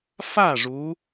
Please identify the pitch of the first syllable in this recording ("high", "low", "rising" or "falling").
falling